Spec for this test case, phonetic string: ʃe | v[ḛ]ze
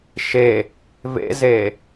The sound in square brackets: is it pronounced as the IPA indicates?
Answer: yes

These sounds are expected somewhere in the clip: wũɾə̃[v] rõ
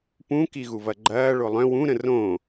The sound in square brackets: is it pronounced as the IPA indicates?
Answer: no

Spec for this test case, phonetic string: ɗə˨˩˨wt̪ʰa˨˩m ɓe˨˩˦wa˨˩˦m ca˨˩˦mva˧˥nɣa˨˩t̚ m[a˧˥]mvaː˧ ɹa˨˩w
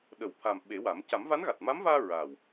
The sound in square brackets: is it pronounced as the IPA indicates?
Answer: yes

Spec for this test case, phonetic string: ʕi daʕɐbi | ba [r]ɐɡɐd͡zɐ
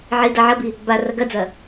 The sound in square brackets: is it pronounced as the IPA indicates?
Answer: yes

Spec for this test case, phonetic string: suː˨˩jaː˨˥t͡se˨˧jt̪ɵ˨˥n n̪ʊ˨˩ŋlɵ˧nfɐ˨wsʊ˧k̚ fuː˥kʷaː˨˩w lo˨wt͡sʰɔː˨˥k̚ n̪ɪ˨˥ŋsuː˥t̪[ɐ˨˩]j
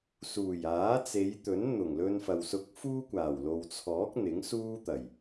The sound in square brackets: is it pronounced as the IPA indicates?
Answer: yes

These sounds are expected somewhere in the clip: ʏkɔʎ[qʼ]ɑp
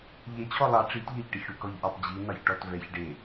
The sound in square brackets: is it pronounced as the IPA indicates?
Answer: no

